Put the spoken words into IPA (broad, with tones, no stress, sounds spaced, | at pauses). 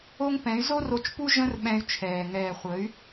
o˦ ŋ p ɛ̃˨˦ y̯ z o˦ r o˧ t͡ʃ p u˦ ʒ ə̃˦ r ɓ ɛ̃˧ y̯ t͡ʃʰ ɛː˨ ŋ ɛː˨ χʷ ə˨˦ y̯